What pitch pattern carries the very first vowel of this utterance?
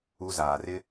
high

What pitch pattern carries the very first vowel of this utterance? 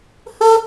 high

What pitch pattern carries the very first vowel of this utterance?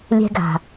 high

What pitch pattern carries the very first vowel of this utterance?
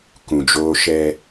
low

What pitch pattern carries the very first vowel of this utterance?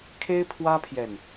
high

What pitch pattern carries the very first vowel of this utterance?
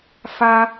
high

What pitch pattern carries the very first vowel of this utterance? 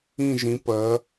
falling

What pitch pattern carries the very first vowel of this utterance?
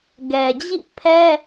low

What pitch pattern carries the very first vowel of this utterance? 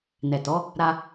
low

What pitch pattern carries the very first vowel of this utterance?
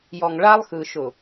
low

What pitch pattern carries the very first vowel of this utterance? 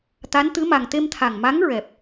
rising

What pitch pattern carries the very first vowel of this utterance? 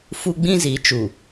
high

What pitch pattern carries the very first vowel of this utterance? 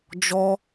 high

